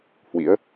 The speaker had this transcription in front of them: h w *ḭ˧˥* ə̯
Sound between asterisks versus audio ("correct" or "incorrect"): correct